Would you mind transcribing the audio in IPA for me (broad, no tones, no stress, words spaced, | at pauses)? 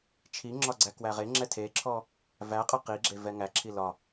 t͡ʃʰiŋ͡ǁɒ ɡ͡ǀækwæʁeŋ͡ǁɛ tʰeǁʰɔ | væqʼə qiɡ͡ǁe vɛŋæǁʰi lɒ